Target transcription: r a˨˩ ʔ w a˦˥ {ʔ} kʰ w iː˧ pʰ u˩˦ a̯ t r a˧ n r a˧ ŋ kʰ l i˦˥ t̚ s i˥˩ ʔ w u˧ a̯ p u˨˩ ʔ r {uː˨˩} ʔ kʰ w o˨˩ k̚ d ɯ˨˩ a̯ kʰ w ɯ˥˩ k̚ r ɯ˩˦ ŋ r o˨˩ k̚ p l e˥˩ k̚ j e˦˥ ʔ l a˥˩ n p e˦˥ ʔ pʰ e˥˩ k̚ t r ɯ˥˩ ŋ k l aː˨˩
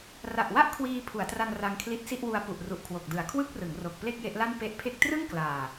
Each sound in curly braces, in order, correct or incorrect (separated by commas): correct, incorrect